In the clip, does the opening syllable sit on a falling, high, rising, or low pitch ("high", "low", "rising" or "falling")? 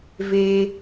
high